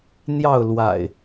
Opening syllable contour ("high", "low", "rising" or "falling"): falling